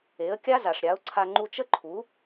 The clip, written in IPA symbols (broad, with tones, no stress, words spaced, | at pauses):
e˩˥ə̯kʲa˥ za˩ʂɾʲa˩˥ʊ̯ǀʰa˧ ŋ͡ǃu˧t͡ʃə˥ǃʰu˩˥